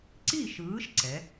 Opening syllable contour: falling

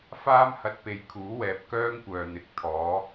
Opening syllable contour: high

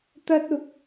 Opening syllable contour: high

